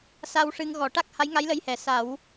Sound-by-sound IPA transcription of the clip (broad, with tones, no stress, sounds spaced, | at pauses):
s a˧ w ʂ ɨ˧ ŋ ɣ ɔ˨˩ ʈ a˦˥ k̚ h a˧˥ j ŋ a˧˥ j l ə˧˥ j h ɛ˨˩˨ s a˨˩˦ w